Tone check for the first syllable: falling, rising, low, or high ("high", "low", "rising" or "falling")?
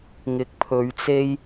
rising